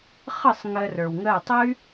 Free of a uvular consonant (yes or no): no